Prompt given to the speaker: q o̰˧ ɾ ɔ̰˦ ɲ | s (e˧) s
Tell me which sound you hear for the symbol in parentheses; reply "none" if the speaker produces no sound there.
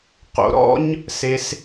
e˧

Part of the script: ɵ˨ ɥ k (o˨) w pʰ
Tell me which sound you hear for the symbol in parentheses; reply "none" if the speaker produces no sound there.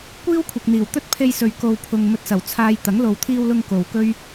o˨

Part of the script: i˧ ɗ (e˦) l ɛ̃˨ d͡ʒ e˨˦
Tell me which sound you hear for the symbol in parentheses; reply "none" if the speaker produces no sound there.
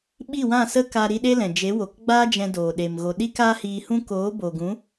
e˦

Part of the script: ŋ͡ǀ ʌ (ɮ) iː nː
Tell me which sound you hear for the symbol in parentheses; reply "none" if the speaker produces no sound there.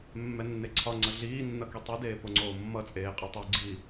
ɮ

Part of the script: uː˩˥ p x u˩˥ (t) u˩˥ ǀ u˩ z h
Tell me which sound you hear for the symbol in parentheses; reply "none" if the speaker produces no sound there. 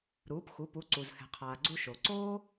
p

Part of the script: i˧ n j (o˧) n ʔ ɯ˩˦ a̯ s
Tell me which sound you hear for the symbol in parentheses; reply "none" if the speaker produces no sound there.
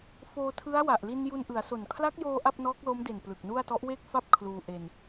u˧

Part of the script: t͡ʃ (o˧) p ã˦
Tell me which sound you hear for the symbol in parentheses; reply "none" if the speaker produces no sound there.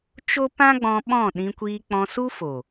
o˦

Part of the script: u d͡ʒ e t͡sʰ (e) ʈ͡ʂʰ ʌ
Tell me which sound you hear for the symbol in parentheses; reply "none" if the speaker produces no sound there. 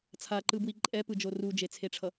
e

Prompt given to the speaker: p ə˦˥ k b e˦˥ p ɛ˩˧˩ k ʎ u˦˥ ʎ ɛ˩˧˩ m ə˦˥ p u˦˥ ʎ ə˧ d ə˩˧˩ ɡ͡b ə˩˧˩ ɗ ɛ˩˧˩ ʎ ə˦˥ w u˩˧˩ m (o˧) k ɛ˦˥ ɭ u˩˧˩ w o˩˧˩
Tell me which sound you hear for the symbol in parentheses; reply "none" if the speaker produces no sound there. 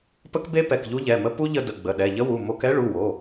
o˧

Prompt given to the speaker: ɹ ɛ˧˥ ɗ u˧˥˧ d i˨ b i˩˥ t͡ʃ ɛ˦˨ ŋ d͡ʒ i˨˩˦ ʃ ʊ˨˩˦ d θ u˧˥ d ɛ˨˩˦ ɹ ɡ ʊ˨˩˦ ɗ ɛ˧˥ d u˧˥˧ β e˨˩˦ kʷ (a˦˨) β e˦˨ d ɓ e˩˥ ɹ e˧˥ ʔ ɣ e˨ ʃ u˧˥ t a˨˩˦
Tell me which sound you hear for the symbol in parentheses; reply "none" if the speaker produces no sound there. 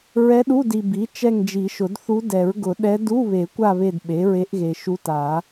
a˦˨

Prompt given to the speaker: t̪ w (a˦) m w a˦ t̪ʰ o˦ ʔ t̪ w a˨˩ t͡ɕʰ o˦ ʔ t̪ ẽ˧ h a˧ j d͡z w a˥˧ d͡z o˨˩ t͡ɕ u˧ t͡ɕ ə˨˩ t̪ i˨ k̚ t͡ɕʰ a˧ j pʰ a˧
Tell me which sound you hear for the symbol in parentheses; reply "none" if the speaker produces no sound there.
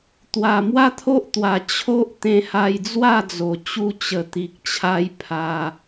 a˨˩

